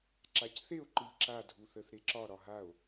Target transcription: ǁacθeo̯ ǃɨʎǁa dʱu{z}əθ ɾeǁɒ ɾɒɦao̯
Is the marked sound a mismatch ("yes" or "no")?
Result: yes